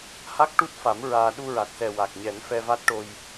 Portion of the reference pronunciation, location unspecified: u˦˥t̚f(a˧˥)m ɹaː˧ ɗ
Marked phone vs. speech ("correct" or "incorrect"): incorrect